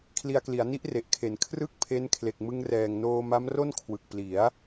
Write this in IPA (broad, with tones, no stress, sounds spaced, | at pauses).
kʰ l i˧ a̯ k l i˩˦ a̯ n i˦˥ ʔ r e˨˩ ʔ kʰ e˩˦ n kʰ r ɯ˥˩ k̚ pʰ e˦˥ n kʰ l e˨˩ k̚ m ɯ˧ ŋ r ɛː˨˩ ŋ n oː˧ m a˦˥ m r o˥˩ n kʰ w ɯ˨˩ k̚ p l i˩˦ a̯